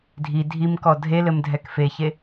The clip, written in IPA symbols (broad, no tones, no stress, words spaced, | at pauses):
dʱi dʱimkɔ dʱelɘm dʱɛkfeçe